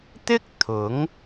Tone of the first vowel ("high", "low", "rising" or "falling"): high